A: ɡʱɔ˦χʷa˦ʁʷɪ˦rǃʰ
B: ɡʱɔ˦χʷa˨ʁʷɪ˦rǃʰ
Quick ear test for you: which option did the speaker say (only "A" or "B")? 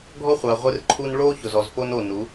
B